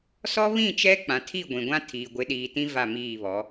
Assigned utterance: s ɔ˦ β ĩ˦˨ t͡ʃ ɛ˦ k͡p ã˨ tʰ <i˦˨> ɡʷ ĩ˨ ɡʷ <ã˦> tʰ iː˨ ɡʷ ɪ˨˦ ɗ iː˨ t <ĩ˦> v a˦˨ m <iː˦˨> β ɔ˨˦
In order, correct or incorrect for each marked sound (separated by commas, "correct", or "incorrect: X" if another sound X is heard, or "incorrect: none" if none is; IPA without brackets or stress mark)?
correct, correct, correct, correct